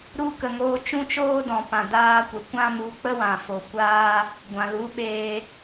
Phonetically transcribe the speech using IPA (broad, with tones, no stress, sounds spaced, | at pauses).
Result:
ɾ u˧ k ə˨ ŋ oː˧ t͡ʃ ũ˦ t͡ʃ oː˦ d ɔ̃˨ p ã˨ d aː˧ kʷ ə˨ kʷ ã˦ m u˨˦ k͡p ə˦ w ã˨ f o˨ kʷ aː˦ | ɡʷ ã˨ l u˨˦ ɓ eː˧